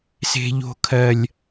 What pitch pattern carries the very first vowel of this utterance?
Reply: high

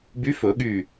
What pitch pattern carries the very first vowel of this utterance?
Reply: rising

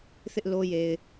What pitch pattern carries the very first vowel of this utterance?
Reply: high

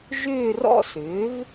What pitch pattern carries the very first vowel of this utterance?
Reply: falling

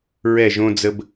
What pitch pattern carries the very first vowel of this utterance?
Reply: falling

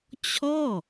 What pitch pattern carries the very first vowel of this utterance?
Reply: falling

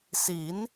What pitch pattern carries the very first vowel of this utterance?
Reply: rising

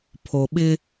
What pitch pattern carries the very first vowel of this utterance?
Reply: low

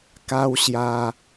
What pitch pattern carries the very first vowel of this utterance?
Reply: high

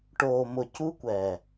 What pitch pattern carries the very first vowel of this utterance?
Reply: low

